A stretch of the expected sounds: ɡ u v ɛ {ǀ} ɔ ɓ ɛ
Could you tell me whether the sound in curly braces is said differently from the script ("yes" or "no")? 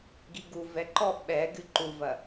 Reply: yes